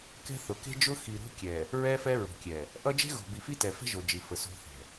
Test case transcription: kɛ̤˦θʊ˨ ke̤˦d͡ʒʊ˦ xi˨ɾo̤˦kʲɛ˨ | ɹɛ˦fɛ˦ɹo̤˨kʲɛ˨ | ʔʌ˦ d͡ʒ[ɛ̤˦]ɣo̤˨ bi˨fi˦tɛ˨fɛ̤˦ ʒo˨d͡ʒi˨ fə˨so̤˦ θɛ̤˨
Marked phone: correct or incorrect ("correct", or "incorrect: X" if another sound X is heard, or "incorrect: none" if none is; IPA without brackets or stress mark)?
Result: incorrect: e̤˦